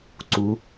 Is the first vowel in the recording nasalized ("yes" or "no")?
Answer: no